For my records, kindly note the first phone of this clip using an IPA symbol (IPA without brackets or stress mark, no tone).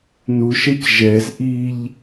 n